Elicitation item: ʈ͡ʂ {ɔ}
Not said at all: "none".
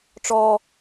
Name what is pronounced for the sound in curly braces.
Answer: ɔ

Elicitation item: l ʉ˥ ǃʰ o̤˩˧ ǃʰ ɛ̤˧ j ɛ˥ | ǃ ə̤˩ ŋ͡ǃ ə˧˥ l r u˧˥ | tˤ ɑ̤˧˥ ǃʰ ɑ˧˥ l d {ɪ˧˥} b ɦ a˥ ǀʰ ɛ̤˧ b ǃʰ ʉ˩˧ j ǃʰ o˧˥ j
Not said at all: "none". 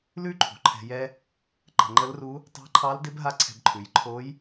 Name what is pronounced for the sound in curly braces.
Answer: ɪ˧˥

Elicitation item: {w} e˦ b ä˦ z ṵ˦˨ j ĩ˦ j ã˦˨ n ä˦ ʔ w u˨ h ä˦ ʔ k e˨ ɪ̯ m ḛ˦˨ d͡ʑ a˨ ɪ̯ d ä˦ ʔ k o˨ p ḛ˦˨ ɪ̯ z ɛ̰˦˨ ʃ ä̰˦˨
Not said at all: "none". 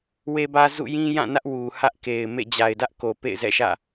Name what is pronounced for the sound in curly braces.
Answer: w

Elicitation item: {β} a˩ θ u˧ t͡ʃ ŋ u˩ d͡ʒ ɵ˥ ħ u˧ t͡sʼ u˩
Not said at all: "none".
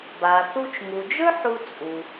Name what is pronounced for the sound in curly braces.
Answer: b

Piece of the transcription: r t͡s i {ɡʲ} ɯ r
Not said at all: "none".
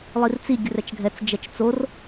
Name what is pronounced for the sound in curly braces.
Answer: ɡʲ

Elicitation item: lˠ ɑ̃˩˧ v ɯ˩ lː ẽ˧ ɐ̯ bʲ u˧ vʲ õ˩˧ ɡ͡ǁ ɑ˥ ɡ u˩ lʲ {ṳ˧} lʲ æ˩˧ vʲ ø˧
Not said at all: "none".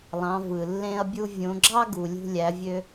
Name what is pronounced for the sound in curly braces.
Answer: ṳ˧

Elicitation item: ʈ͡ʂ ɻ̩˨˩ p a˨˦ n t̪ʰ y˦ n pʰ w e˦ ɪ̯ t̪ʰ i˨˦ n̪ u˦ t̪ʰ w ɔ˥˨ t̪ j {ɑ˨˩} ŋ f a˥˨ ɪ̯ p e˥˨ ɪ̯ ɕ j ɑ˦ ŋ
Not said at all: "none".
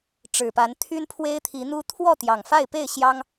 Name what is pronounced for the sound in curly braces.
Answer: ɑ˨˩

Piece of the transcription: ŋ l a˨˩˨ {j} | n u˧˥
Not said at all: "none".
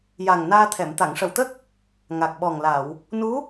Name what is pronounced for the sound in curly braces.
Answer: w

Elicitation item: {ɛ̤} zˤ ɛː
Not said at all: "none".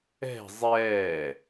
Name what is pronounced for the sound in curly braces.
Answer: ɛ̤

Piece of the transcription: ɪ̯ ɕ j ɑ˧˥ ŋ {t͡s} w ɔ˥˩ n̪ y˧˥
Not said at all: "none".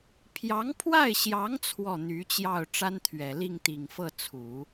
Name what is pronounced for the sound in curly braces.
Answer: t͡sʰ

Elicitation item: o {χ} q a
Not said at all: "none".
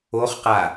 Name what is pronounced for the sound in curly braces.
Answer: χ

